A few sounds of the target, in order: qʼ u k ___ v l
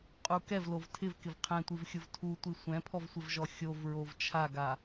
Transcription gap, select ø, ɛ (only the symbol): ɛ